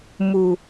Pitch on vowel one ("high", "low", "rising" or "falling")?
low